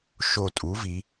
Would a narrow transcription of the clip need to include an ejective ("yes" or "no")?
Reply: yes